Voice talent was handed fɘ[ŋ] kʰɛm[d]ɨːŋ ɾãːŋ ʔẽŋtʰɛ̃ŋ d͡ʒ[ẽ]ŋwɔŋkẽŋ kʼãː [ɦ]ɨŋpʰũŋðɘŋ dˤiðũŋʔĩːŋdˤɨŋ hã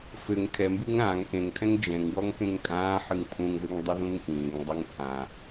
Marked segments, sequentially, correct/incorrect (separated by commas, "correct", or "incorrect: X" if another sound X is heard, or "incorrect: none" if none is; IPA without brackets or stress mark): correct, incorrect: b, incorrect: ɛ̃, incorrect: ħ